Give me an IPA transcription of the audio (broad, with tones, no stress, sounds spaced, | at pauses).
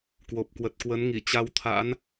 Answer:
k w o˨˩ p̚ k w ə˨˩ t̚ k w ə˨˦ n ŋ i˧˩ t͡ɕ a˧ w t̪ʰ a̰˧˥ n